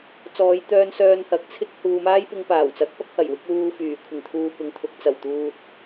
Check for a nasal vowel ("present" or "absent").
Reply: absent